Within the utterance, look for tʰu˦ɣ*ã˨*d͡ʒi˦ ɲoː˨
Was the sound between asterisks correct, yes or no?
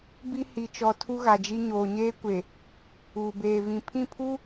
no